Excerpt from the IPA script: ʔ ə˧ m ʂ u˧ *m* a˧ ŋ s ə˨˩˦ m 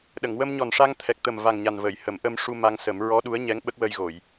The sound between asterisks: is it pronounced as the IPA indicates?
yes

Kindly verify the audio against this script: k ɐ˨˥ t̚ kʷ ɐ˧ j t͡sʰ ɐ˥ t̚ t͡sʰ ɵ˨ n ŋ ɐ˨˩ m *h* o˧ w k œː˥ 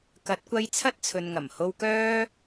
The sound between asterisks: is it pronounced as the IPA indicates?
yes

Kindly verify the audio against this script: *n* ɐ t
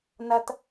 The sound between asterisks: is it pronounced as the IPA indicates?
yes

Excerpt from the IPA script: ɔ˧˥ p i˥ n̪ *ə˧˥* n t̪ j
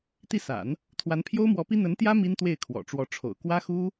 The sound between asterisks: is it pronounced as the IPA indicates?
yes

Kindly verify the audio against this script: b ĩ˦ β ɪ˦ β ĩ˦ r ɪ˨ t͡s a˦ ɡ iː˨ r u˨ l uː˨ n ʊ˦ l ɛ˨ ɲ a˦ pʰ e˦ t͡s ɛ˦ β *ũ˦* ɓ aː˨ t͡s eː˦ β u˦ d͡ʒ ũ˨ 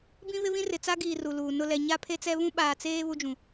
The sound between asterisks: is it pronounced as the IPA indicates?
yes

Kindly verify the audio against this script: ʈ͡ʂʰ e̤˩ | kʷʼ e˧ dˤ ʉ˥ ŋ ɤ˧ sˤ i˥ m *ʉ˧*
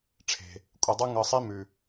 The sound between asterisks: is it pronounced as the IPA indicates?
no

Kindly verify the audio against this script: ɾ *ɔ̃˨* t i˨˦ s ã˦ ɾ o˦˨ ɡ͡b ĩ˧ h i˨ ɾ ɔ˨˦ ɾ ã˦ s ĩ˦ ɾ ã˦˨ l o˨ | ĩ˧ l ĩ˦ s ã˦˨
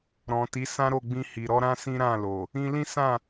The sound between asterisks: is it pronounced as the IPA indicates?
yes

